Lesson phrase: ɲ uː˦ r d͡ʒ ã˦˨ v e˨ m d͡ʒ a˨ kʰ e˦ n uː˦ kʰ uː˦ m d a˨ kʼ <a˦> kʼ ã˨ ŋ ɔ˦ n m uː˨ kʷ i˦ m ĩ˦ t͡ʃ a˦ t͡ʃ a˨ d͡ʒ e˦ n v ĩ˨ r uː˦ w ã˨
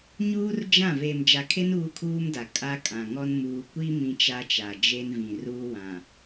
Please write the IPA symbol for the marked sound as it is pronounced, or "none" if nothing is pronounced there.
a˦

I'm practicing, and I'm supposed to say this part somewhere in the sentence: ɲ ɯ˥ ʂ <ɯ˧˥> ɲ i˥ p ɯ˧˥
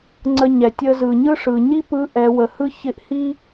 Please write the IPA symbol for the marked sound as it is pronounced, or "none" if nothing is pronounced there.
ɯ˩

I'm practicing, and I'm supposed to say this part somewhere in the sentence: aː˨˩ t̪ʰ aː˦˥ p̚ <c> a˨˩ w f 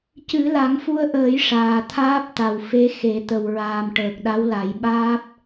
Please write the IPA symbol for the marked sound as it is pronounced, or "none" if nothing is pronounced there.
t̪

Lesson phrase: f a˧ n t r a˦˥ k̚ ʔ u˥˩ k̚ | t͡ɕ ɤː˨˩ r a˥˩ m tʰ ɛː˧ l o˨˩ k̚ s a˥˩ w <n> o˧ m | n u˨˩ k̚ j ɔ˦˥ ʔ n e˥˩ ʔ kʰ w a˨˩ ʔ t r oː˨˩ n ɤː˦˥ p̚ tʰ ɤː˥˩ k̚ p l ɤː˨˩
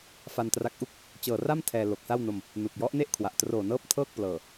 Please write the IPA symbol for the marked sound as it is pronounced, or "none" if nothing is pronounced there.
n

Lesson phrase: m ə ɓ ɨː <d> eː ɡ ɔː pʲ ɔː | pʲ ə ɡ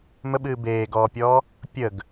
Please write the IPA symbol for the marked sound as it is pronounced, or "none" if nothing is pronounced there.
b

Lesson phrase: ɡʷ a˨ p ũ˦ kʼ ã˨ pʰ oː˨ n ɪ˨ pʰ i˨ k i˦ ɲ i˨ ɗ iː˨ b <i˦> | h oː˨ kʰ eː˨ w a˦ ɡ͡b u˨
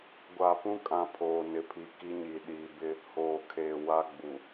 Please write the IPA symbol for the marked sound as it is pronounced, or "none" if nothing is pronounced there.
ɪ˦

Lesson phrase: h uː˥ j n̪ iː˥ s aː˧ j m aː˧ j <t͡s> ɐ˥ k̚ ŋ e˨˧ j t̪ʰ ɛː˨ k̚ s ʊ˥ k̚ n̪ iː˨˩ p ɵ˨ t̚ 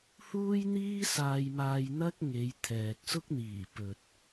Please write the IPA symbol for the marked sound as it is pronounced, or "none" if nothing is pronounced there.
n̪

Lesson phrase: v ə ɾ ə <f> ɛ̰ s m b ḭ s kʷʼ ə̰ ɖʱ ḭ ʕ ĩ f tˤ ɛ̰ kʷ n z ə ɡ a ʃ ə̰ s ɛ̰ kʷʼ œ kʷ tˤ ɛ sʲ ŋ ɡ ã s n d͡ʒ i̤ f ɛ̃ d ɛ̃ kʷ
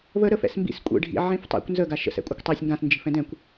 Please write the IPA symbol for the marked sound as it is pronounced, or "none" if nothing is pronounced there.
f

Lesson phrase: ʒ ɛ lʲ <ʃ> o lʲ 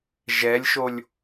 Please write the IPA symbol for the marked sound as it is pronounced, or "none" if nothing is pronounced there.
ʃ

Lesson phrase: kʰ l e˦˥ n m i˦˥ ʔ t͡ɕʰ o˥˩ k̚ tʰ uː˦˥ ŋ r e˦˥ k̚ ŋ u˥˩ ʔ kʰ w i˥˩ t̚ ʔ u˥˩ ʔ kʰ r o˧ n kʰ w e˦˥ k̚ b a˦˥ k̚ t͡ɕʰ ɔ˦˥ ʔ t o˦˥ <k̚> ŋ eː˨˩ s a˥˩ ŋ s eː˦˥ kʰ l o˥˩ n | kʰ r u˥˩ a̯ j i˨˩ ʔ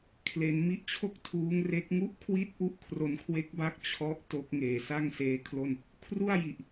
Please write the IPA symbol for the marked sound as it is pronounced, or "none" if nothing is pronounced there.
k̚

